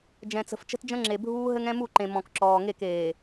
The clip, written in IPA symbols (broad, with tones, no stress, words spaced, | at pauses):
d͡ʒɛ̃˨t͡sə̤˨f t͡ʃə̤˦td͡ʒə̃˦ŋ͡ǁe˨bʱuː˦ ɦɘ˦ŋɛ̃˦mu˦˨ǃẽ˨ mɔ̃˨kǁɔː˨ ŋe˦˨keː˨